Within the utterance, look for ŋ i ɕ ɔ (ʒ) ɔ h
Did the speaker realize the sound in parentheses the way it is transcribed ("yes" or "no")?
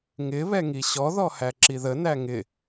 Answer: no